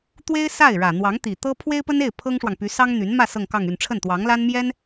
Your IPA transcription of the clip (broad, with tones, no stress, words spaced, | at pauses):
t̪we˥ɪ̯sa˥˩ɪ̯ɻä˨˩n̪wɑ˧˥ŋ t̪i˨˩t̪ɤ˥ pʰwe˥ɪ̯pə˥ne˥˩ɪ̯ pʰɤ˥ŋʂwɑ˨ŋpy˧˥ sɑ˥ŋn̪y˧˥nmä˥˧ sɤ˥˧ŋkɑ˥˧ŋy˥˧n ʈ͡ʂʰə˥˩nt̪wɑ˧˥ŋla˥n mjɛ˥n